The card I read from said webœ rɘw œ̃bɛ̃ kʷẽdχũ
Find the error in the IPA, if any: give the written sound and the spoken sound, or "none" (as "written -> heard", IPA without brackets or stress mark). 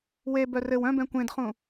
none